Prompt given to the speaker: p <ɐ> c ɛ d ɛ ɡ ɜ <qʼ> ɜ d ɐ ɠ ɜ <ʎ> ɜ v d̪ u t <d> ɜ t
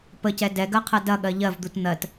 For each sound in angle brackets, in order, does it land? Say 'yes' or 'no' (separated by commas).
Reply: no, no, yes, no